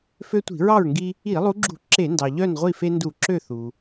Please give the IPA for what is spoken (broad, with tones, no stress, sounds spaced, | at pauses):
f ø˦ tʷ i̤˧˩˧ ɹ ɑ˥˨ ɹ ŋ ɡ i˦ | i˧˩˧ lˠ u˨˦ ɡ͡ǁ ṳ˧˩˧ ǁ e˧˩˧ n d ɑ˩ ʎ œ˥˨ n ʁʷ i˥˨ f e˦ n d u˧˩˧ ǁ ø˥˨ θ u˩